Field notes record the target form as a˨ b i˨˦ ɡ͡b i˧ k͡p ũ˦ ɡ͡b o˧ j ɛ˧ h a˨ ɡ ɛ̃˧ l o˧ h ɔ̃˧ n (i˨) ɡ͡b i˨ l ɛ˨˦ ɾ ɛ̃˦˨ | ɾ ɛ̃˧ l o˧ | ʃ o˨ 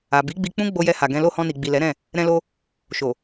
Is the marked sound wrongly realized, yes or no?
no